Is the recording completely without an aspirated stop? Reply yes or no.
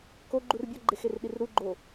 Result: yes